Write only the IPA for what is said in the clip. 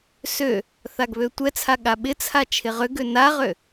sø | θaɡβøtʷɛt͡sʰa ɠaɓɪt͡sʰa t͡ʃʰɪʁʏɡø naʁø

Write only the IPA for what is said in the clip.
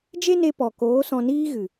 d͡ʒe˦ne˧pɔ˨koː˨˦ sɔ̃˧niː˦ɣɨ˨

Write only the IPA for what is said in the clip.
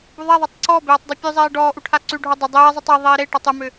buðˤɛðˤɛtˤ ǀɔbeːtˤ dˤʉpʲʉzˤeː ɖɔːʔu ʈʰaǀʉɖʱo dˤʏ dˤeː zˤʏtˤeðˤeː ɾe ʈɔtˤʉmʏ

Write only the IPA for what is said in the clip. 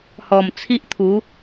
hɔ˨˩mt͡sʰi˦ʔt̪ʰu˨˦

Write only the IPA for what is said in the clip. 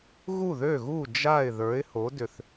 ɣu˥˩ðø˥˩ɣu˥˩ d͡ʒa˥˩ɪ̯ ðə˞˩˥ɪ̯ho˩˥ dʏ˨θ

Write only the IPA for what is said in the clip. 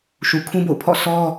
ʃu˨ kʰũ˦bo̰˦˨ʊ̯pʰɔ̰˦˨ sʰɔ˦

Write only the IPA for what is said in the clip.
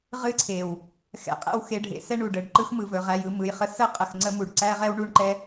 ʁɨ˦ǀʰe˨w | xɛ̰˧qʼɛ̰˦w xe˧ɖʱḛ˧sɛ˦ɳu˨ ɖə˨ɖǃɯ˦x mɯ˨vɵ˨ʁæ˧jɯ˧ mɯ˨jχə˧ sə˦ qʼə˧xŋ͡ǀə˦ mu˨ɖǀæ˦ʁɛ˦w ɳu˦ɳǃɛ˦

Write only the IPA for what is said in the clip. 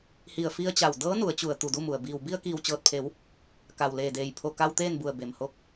hi˧˩ə̯fi˧ə̯t͡ɕa˧˩w dɤː˧˥nu˩˧ə̯t͡ɕu˩ə̯ t̪u˧˩du˥˨mu˩ə̯ biː˩w bi˧ə̯kiː˧˩wt͡ɕɤː˧˩t̚pʰe˩˧w | ka˩w leː˧˩deː˧˩j pʰo˧˩ka˧w t̪eː˥˨nbu˧˩ə̯be˩mho˧k̚

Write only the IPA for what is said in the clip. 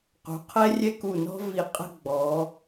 qṳ˩˧qʰɛ˥rʲɛ˥ku˧˩ nɔ̤˥vi˧qʼə̤˥˧ ɡ͡bɔ˩˧

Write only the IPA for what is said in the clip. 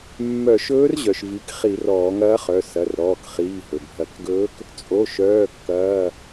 mːœ˧˩˧ʃɵː˧˥rʑœ˩ʃ vi˩˧˩k χi˧˩˧rɔː˧˩˧ŋɐː˧˥χœ˩˧˩ sɐ˩˧˩rɾɔː˩˧˩kχiː˩˧˩ ɦɵ˩bʱɐ˧˩˧kɡɵː˧˥k | t͡sʼo˩˧˩ʃœː˩˧˩ kːɐː˩˧˩

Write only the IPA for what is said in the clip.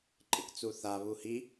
ǃʼɪkt͡suθa βuhi

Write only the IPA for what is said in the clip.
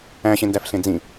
æ̃ ɕẽndæfɬẽd͡zĩ

